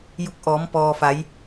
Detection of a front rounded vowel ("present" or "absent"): absent